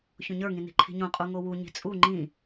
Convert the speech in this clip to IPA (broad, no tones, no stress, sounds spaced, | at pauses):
ç õ ɲ ə˞ ŋ ĩ n i̤ ǃʰ i̤ ɲ õ qʼ u ŋ o w u ɲ i̤ t͡sʼ u ŋ͡ǃ ĩ